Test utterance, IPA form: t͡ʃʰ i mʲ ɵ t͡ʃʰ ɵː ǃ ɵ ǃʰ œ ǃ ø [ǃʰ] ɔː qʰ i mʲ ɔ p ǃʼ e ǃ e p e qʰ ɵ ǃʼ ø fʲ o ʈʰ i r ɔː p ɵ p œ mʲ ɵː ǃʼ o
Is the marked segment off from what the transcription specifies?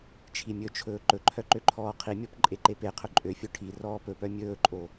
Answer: no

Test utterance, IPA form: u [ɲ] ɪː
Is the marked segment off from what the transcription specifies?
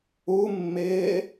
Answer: yes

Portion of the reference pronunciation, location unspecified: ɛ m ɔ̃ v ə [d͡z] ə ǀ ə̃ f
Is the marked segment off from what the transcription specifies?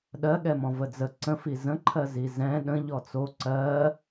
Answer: no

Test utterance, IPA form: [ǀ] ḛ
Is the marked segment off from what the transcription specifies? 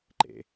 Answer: yes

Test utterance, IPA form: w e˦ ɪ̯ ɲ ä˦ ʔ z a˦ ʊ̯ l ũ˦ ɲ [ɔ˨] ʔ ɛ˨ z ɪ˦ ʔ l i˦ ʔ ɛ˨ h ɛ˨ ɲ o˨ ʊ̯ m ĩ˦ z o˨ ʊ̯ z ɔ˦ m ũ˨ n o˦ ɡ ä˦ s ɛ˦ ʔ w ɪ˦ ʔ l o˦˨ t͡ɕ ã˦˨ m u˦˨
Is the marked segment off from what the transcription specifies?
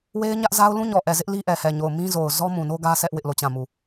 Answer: no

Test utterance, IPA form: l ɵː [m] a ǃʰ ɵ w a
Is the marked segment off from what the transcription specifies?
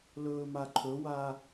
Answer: no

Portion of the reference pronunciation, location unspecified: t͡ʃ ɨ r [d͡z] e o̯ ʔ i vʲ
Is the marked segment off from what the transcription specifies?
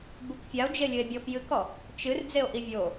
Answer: no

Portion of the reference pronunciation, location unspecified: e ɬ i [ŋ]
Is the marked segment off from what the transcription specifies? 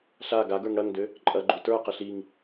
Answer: no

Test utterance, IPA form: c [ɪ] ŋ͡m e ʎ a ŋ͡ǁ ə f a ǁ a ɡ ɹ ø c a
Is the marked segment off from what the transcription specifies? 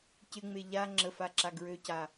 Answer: no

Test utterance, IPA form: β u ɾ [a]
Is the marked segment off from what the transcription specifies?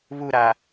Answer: no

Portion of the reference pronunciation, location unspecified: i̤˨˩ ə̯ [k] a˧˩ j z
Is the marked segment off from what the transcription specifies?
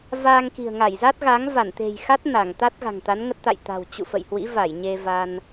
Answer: yes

